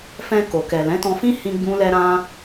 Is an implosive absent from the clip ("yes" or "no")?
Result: yes